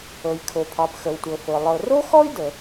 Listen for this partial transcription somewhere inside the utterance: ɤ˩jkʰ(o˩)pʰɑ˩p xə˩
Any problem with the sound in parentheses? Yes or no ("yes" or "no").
no